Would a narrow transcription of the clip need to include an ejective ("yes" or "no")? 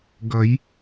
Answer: no